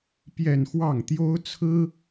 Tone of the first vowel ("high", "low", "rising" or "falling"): falling